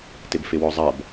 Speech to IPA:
t ɪ b f ɪ w ɔ zˤ ɐ b

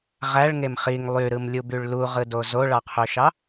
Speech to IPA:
ʁ æ ɭ ŋ e m χ i ŋ lˠ y ɾ ɯ m lʲ u b y ɭ l u ʁ ɯ d o z o ɭ ɑ qʰ ø ʃ ɑ

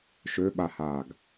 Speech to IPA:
ʃ ø ɓ a h aː ɡ

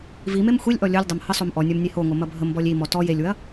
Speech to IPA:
v i m e m xʷ i lʲ ʔ ɔ lʲ o lʲ dˤ ɐ m h ə sˤ o m ʔ ɔ nʲ ɔ m nʲ e h o ŋ o m ɐ bʱ ə m b ɔ lʲ i m ɔ t ɔ j e lʲ w ɐ

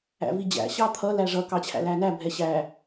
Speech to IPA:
æ̰ v i d͡ʑ æ̰ ɕ ɑ t̪ʰ ʌ l æ ʐ ʌ k ɑ t͡ɕʰ æ̰ l æ n æ bʱ ɛ ɕ æ

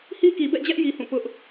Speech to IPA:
h i˦ k i˨ b ɛ̰˦˨ d͡ʑ ɛ˦ ʔ j i˦ h ũ˦˨ p ʊ˦ ʔ

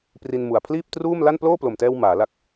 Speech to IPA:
p r i˧ n m u˨˩ a̯ pʰ l iː˥˩ p̚ t r uː˥˩ m l a˥˩ n p l oː˥˩ p l o˨˩ m t ɛː˧ w m aː˩˦ l a˦˥ k̚

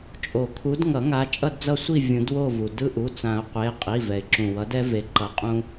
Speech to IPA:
t͡ʃʼ o˨˩˦ kʰ u˨˦ d ŋ ʌ˨˩˦ ŋ a˨˦ t͡ʃʼ ʌ˦˨ d d͡z ʌ˦˨ sʷ i˦˨ vʲ ũ˨˩˦ d w o˦˨ v u˩ d ɯ˦ ʔ u˩˧˩ t͡s ã˨˩˦ ʊ̯ qʷ e˩˧˩ qʼ i˩˧˩ v ɛ˩ ɪ̯ ǁ ũ˩ w ʌ˨˦ d ɛ˦ v e˨˦ ǃ ʌ˨˦ qʼ ũ˦

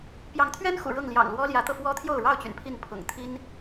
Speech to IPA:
p j ɑ˨˦ ŋ t̪ʰ ɥ ɛ˦ n x ṵ˨˩ ɻ ɤ˥˨ ŋ l j ɑ̰˨˩ ŋ l w ɔ˦ l j ä˨˦ t̪ ɤ˧ f w ɔ˦ t̪ʰ j o˥˨ ʊ̯ ɻ ɑ˥˨ ʊ̯ t͡ɕ y̰˨˩ n pʰ i˥˨ n pʰ ʊ̰˨˩ ŋ t̪ʰ i˦ n

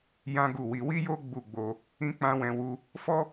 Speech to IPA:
j ã˦ ɡ u˦˨ w i˧ w i˦ j o˦ ɡ͡b u˦˨ ɡ͡b o˧ | ĩ˦ k͡p ã˦ w ɛ̃˧ w u˧ | f ɔ˦

